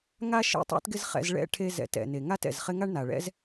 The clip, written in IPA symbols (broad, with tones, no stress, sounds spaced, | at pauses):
ŋ a˥ ʃ ḛ˥ tˤ ḛ˥ t ɡ ɪ˥ z χ ɛ̰˧ z ɭ ɛ̰˥ ʈʰ e˥ z ɛ̰˧ t ɛ̰˩ n e˩ ŋ a˥ t ɛ̰˩ z χ ɪ˥ ŋ a˥ ɳ n a˩ ɭ ɛ̰˥ z